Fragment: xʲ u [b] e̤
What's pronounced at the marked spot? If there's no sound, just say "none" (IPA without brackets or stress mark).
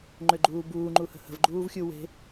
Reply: w